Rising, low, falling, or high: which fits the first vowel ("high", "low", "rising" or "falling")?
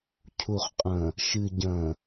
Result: low